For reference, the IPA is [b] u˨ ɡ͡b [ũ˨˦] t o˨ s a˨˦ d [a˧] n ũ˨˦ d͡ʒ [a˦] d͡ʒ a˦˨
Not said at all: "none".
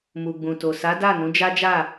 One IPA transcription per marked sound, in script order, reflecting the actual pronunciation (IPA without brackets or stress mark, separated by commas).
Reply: m, ũ˨, a˦˨, a˦